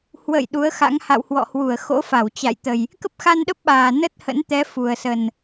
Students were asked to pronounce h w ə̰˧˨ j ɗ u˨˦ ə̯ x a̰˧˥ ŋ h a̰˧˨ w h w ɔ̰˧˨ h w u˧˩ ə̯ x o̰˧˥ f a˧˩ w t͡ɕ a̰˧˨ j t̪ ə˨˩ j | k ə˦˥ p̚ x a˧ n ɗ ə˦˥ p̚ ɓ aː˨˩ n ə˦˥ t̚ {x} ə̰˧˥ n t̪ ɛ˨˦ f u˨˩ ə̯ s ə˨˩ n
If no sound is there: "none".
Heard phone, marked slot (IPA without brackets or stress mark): h